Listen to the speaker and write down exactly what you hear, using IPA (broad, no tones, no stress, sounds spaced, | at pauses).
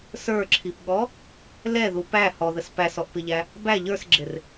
s ə˞ ǁʰ i p ɠ ɔ | l ɛ ð u p æ h ɔ ð ə s p æ s ɔ ʔ p ɪ ʎ æ | b æ ʎ ə˞ s ɡ͡ǁ ɪ r